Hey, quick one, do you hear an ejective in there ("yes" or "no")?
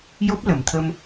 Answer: no